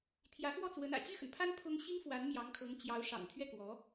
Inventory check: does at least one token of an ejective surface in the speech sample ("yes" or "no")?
no